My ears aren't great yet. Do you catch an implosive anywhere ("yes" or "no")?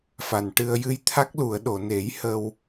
yes